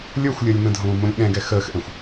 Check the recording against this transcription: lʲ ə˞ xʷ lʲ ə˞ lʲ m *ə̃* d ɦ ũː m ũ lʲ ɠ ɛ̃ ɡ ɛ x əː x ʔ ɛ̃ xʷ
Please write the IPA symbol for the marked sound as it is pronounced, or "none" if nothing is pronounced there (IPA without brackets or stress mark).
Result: ə̃